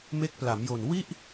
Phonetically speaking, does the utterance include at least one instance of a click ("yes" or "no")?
no